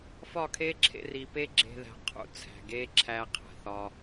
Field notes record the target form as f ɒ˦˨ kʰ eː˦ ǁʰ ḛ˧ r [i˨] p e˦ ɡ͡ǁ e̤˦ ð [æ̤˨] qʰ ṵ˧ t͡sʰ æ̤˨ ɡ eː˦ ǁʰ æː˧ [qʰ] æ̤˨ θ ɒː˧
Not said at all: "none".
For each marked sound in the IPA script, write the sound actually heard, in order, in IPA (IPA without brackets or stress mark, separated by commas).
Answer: i˨, æ̤˧, qʰ